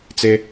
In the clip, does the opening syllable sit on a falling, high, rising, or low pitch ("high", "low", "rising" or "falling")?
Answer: high